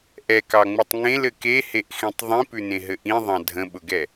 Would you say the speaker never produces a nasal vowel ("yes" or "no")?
no